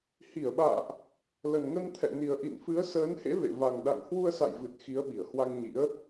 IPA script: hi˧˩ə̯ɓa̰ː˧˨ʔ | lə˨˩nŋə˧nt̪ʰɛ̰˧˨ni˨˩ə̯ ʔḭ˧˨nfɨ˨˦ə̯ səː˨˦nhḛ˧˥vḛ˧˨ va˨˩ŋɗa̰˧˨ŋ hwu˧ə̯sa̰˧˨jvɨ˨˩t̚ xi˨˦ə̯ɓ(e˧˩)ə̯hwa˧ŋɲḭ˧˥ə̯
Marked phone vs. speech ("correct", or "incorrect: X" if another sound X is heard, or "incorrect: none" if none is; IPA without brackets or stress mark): incorrect: i˧˩